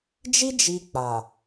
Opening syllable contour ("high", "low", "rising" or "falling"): high